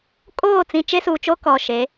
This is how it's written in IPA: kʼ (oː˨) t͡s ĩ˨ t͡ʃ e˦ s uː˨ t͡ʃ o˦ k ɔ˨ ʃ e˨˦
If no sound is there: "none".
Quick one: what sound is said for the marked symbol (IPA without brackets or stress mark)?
oː˦˨